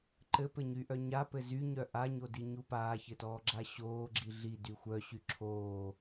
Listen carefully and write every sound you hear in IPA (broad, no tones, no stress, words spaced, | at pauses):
ǃɘpɘɲyʔœ ɲapɘ zyɲœ ʔaɲodiɲu paːçɘtɔːɡ͡ǁa ɕoːɡ͡ǁi ɮidy xʷœɕy ǁʰoː